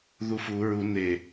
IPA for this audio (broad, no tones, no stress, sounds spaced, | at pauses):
ð u f u ɹ u n e